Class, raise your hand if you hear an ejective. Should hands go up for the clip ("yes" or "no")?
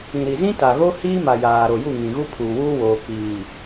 no